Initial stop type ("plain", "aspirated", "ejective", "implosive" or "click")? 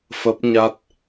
plain